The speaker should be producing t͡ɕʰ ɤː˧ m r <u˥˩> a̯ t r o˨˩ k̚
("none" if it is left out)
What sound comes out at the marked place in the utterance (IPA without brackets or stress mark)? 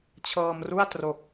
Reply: u˥˩